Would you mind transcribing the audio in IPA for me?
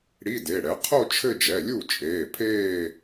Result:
ɽi˧˥˧de˩˧˩ɽɛ˩˥ qʰo˥˧ t͡ʃʰɘ˥˧d͡ʒɛ˩˧˩ lʲu˥˩t͡ʃʼeː˩˧˩pʰeː˥˧

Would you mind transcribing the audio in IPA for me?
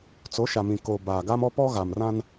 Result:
t͡so˨˦ʃa˨mĩ˨ ko˨ baː˨ɡa˦mɔ˦pɔ˦ ɣa˨mrã˦n

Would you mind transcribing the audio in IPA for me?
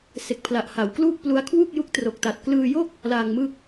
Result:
se˨˩k̚pʰla˨˩ʔha˩˦w kluː˥˩k̚plu˦˥a̯ kʰwu˥˩k̚ ju˦˥k̚tro˨˩k̚ta˨˩t̚ klɯː˧jo˥˩k̚ | laː˧ŋmɯ˥˩k̚

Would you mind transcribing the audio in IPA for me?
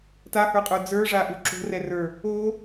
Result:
tahə˞qʼə˞ d͡zə˞ʐaʔu ǁo̤rɛrə˞ | o

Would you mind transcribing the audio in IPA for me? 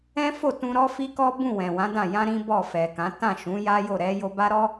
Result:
ɛ̃˦fo˦˨tũ˧ ɾɔ˦fi˦kɔ˦bũ˦˨ wɛ̃˨wã˨˦dã˦˨ jã˧ ɾĩ˦bɔ˦˨fɛ˨kã˨˦ tã˦˨ ʃũ˨˦ja˦jo˦˨ ɾɛ˧ jo˧ ba˦ɾɔ˦

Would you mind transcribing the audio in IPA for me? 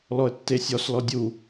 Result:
lɔə̯tːesʲɔs lɔdʲu

